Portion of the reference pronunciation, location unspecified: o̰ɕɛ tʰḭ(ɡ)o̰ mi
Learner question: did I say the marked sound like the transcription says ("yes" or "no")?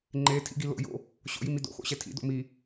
no